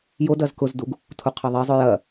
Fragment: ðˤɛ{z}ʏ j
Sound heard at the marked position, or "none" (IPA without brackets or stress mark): zˤ